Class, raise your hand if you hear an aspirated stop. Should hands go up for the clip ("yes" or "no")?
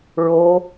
no